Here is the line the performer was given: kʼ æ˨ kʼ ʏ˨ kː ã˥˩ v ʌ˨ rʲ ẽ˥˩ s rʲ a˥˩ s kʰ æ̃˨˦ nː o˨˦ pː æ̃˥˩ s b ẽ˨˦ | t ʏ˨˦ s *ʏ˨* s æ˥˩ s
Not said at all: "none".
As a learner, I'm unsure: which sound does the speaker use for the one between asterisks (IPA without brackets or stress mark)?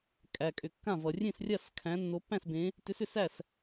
ʏ˨